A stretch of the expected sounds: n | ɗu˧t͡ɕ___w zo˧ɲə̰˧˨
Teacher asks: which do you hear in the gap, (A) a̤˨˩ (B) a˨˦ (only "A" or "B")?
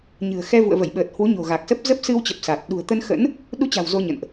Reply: A